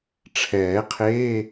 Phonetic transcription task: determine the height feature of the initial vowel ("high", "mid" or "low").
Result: mid